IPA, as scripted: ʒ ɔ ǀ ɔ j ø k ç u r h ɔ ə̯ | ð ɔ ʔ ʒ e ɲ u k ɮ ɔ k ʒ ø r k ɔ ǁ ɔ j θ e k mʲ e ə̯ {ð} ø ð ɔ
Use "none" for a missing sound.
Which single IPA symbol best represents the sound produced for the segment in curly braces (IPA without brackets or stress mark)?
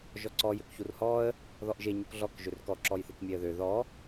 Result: ð